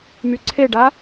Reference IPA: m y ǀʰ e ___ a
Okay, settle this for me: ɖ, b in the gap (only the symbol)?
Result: ɖ